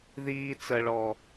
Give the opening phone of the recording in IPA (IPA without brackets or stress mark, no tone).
ð